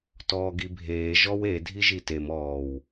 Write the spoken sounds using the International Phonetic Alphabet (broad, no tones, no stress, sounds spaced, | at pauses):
t ɔː ɡ i bʱ eː ʒ ɔ w e dʱ i ʒ i t e m ɔː w